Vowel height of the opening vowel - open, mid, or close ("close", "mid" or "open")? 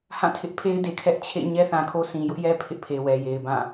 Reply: open